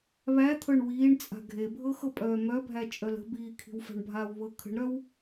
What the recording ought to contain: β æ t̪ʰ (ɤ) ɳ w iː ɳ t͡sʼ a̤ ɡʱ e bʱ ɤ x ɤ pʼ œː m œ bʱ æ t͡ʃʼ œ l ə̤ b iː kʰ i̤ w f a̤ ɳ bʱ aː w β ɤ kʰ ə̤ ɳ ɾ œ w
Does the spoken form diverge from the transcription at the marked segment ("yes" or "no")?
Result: no